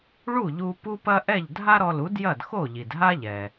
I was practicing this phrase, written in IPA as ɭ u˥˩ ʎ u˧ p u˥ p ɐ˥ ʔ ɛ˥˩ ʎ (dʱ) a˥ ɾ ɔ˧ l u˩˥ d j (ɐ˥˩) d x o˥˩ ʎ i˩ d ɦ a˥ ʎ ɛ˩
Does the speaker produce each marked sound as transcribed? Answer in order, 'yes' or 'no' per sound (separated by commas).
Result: yes, yes